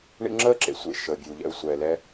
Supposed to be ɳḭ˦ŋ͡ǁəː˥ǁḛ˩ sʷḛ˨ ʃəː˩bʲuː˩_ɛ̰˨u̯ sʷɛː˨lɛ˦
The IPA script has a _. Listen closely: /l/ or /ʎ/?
ʎ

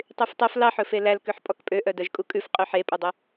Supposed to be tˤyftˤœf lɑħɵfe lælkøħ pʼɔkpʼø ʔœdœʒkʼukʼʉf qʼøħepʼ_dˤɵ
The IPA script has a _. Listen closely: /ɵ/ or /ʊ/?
ɵ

